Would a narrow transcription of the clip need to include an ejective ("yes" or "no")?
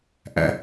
no